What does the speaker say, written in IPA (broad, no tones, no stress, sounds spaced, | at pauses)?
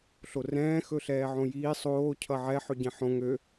ɬ o r ɛ̃ː x ɵ ɬ ɛː ʕ õ j iː sˤ oː cʰ ʌ ʕ ɛ ħ ɵ ɟ ɛ̃ ħ õ ŋ ø